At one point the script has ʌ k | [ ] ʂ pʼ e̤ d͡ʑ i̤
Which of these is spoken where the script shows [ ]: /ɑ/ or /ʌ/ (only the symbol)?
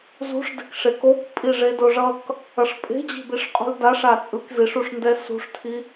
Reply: ʌ